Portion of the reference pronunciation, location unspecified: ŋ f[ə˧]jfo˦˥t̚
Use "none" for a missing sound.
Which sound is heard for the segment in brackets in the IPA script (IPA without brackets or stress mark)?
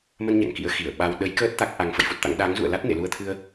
ə̰˧˨